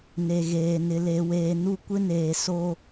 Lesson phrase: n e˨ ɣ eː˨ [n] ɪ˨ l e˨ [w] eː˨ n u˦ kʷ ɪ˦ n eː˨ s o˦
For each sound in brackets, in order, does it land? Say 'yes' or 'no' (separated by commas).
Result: yes, yes